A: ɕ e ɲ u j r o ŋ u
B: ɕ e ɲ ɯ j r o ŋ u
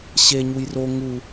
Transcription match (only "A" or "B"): A